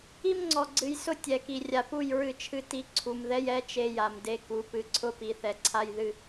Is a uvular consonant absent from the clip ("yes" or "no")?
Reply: yes